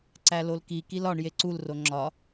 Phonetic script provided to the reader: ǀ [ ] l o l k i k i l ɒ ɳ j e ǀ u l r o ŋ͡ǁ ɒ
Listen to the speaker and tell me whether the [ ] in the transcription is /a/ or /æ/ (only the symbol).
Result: æ